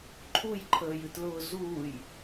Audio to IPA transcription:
ǃʰ u j ǃʰ əː j ɨ t l ʊː z uː j

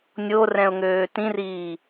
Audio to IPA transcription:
nʲ o r ɛ̃ ʊ̯ ŋ øː t ĩ r iː

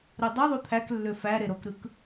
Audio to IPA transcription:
ɾ u dˤ ɯ ðˤ u t̪ʰ æ k lː ø f æ ɾ e ɾ o k ɾ ɯ k

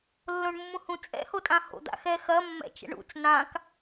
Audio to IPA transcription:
lː õ ɳ mː ũ h ũ t͡sʼ ɛ̰ h o tʼ ã h o̰ d̪ a̰ x ɛ x ɐ mː ɛ̰ t͡ʃ ɛ̰ ɳ ṵ t͡s n ã k

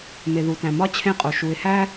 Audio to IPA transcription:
m e˨ ð u˨ t æ̃˨ m ɒ˦ t͡ɕʰ ẽ˦˨ qʼ o˨ ʃ u˨ ɪ̯ h æ˦

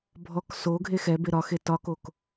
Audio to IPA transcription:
bʱ ɔ k s o ɡʱ e x ɛ b e ɾ ɒ x e t ɒ k o k

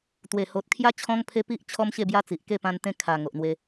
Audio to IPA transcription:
t̪ w e˨˩ h o˨ t̚ kʰ j a˦ t͡ɕʰ ɔ̃˦ ŋ pʰ e˦ p i˦ ʔ t͡ɕʰ ɔ˦ m ɕ e˥˧ b j a˦ t͡s i˨ ʔ k e˥˧ p ã˧ n t̪ ẽ˧ kʰ a˨˩ ŋ o˨ ʔ n̪ w e˧

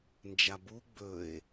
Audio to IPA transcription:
n d͡ʒ a b u ɡ͡b ɵ e̯

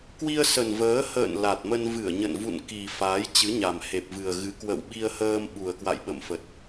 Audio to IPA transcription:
k w i˧ ə̯ s ə˨˩ n v əː˨˦ h ə̰ː˧˨ n l a˨˩ t̚ m ə˧ n v ɨ˧˩ ə̯ ɲ ə̰˧˨ n v ṵ˧˨ n k i˨˩ f aː˨˦ j t͡ɕ ɨ˨˦ ɲ a˨˩ m h e˨˩ p̚ v ɨ˨˩ ə̯ ɣ ɨ˨˦ k w ə̰˧˨ w ɓ i˧ ə̯ h əː˧ m ɓ u˨˩ ə̯ k w a̰˧˨ j ɓ ə̰˧˨ m f ə˨˩ t̚

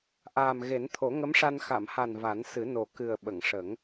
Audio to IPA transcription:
ʔ aː˨˩ m ɣ e˨˩˦ n t̪ʰ o˨˩˦ ŋ ə˧˥ m ʂ a˧ n x a˨˩˨ m h a˨˩ n v a˨˩˦ n s ɨ˨˩˦ n o˨˩ k ɨ˨˩ ə̯ ɓ ə˨˩˨ ŋ ʂ ə˨˩˦ ŋ

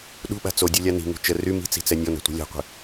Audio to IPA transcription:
ɗ ṳ ɓ a̤ t͡s o dʲ u lʲ a n i̤ ŋ ṳ t͡ʃ ə r y m i̤ t͡s i̤ t͡s ɛ nʲ ɔ n a̤ tʷ a̤ lʲ a̤ qʷ i̤

